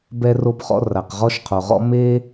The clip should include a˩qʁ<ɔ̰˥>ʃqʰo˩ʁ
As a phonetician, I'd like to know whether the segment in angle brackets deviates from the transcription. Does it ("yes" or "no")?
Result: yes